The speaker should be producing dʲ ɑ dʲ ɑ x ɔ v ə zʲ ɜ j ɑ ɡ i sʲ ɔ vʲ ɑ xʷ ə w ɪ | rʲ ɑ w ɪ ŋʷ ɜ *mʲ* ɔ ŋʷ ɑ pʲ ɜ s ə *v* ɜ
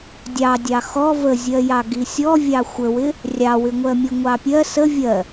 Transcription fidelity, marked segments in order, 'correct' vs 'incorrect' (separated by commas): correct, incorrect